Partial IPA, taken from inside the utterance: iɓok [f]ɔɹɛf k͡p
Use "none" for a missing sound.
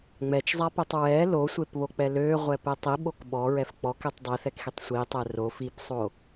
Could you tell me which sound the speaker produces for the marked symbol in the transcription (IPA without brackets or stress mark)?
ɓ